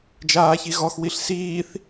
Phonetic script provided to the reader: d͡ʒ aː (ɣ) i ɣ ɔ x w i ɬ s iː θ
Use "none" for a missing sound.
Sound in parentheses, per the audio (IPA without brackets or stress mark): ç